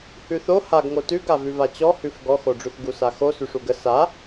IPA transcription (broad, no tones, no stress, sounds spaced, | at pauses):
h ʉ θ o h a ɡ ŋ o t ʉ ɡ a v ʉ v a t͡ɕ ɔ h ʉ f ɡ ɔ x o ɖ͡ʐ ʉ θ ɡ u s a x o s ʉ ʂ u ɡ ə s a